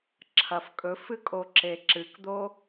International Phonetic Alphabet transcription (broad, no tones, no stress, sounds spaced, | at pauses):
ǁʰ ɐ f kʼ ɵ f ɨ kʼ o ǁ e ǁ ɨ k d̪ o